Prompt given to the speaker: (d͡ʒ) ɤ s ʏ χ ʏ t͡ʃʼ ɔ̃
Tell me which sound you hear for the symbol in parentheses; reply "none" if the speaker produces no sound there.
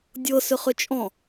dʲ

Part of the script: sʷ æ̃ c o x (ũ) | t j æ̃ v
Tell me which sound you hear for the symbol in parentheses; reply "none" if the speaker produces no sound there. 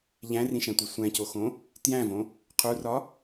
õ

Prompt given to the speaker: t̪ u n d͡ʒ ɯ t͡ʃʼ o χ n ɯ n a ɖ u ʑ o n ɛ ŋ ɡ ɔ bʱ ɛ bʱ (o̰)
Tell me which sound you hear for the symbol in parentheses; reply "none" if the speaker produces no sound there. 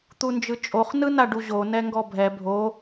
o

